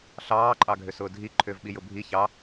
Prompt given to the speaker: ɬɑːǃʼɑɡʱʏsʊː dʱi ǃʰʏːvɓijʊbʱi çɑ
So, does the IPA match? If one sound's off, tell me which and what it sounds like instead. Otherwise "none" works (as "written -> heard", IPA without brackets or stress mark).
none